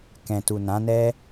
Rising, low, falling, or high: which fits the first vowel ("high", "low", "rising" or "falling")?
low